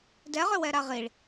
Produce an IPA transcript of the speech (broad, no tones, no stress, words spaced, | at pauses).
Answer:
dɛʁʏ wɛɾaʁiɭ